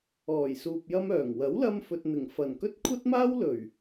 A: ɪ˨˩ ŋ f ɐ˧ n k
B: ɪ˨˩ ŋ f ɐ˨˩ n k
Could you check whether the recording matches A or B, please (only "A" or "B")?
B